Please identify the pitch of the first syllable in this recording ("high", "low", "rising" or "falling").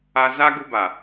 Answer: high